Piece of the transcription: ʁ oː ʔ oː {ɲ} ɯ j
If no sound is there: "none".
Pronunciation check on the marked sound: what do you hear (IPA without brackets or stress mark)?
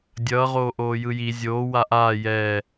j